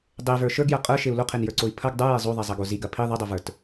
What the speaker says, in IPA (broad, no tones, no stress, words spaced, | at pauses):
dˤevə˞ ʃə˞ɡjɐ qʼə˞ʃeu̯ loqʰenjə˞ǀoi̯ pʰɐɡ dˤə˞je zˤoðˤezˤɐɡo ziɡɐ pʰi ðˤɐdˤovə˞t